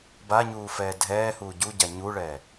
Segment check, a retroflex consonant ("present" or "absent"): present